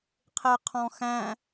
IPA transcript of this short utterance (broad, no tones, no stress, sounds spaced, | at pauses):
qʰ e qʰ ɔ̃ x æ̃